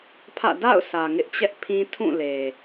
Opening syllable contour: falling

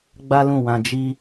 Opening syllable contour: high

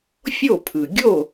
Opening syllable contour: falling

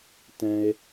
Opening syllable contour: high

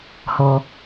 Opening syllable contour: low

